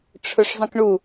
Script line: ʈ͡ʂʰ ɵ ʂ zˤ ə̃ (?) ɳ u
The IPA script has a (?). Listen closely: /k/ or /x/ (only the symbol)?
k